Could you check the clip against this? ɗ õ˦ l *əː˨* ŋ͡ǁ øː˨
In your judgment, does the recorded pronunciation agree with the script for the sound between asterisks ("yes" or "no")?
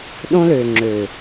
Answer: no